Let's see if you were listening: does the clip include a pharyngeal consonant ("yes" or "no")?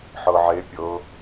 yes